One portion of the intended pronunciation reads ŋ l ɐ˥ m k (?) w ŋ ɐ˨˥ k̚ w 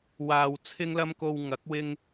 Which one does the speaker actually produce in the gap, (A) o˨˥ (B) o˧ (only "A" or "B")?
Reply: B